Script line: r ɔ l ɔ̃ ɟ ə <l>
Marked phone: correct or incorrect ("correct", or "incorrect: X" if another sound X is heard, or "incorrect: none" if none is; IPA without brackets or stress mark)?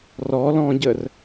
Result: incorrect: r